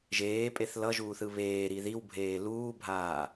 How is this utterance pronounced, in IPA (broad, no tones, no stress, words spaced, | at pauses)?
ʒeːpʼeθ lʌʒuːθɯ βeːɾi ðiwbʱeː luːbʱaː